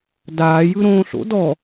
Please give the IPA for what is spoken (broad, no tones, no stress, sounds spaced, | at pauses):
d aː j ɯ ɾ õː ɬ o̰ d ɔ